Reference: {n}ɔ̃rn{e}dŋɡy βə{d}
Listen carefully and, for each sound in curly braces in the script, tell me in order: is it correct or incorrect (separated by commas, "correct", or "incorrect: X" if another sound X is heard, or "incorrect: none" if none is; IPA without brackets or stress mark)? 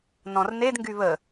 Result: correct, correct, incorrect: none